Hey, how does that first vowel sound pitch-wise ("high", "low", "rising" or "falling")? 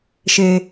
low